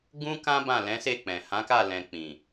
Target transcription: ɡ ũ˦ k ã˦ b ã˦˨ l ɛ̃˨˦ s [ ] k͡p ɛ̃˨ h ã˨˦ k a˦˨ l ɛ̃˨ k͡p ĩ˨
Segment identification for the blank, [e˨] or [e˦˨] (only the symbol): e˦˨